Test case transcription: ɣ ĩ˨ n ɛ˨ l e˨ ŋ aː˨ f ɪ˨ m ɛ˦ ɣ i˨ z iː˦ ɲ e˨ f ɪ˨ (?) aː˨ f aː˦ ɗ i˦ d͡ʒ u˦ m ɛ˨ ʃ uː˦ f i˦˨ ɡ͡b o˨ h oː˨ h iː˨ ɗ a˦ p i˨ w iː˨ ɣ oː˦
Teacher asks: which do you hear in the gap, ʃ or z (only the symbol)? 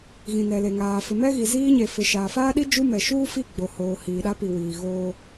ʃ